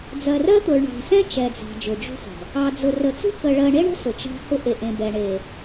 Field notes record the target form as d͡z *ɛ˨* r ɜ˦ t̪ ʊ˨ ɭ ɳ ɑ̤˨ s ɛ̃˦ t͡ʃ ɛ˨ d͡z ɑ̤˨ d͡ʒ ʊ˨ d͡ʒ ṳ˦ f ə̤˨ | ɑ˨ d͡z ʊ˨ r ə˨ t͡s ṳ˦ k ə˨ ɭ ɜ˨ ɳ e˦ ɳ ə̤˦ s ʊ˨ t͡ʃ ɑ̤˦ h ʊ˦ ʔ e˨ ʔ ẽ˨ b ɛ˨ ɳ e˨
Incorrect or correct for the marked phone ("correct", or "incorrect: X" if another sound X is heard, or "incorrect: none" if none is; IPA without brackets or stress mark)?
incorrect: ɜ˨